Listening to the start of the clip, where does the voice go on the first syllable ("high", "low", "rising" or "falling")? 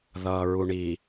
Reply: low